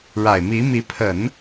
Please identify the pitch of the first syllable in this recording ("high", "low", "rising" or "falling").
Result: low